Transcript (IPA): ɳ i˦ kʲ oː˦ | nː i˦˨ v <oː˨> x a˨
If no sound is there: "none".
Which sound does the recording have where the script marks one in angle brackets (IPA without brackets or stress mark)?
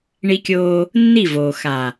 oː˨